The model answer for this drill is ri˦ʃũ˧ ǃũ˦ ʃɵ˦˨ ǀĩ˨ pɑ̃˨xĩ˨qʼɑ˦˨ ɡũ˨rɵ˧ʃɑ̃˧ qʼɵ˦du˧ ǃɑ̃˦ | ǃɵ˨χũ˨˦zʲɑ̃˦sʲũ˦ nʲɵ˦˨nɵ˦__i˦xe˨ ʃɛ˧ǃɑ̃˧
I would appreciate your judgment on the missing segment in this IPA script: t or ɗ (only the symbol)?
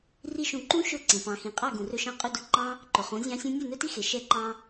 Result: t